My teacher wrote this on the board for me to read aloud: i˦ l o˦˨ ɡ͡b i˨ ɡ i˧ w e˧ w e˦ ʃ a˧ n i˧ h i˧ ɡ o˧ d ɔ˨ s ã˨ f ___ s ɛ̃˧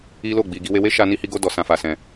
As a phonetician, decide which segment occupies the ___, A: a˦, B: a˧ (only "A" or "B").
B